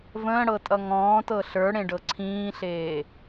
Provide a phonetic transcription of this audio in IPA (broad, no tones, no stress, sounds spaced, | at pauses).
v ə̃ː ɽ ɤ tʼ ʌ ŋ ɔ̃ː t ɤ ɬ ə˞ ɽ ẽ ɖ ɤ ǀʰ ĩː ɬ eː